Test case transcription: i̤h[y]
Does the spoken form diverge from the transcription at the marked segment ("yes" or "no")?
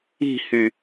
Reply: no